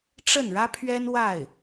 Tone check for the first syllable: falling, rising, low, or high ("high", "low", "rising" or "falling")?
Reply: falling